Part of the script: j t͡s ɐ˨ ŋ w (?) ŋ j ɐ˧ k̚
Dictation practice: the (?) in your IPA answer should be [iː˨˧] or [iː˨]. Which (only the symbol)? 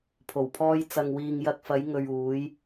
iː˨